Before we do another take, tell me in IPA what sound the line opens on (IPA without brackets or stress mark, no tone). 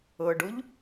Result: ɤ